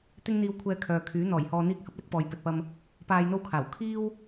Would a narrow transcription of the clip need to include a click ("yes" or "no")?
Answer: no